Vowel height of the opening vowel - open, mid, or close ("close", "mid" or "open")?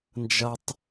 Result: open